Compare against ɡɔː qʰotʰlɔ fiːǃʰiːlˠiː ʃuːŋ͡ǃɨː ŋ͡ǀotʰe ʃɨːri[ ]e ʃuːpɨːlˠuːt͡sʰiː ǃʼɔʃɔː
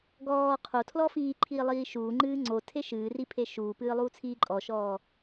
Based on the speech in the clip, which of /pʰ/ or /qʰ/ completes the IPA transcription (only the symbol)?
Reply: pʰ